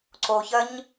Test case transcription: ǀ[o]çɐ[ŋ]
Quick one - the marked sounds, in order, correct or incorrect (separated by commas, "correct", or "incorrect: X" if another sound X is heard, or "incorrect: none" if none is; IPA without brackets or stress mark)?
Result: correct, incorrect: ɲ